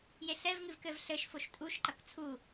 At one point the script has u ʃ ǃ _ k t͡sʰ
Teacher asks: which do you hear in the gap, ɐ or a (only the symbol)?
ɐ